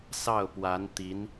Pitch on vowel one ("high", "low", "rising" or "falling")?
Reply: falling